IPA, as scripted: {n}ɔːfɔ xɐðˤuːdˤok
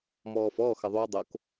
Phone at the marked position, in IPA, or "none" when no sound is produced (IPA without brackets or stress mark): m